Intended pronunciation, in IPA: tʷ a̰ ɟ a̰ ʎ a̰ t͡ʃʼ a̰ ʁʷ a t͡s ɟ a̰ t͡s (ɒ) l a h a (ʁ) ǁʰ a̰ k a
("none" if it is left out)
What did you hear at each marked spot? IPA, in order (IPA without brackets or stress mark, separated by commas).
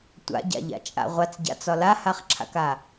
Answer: ɒ, χ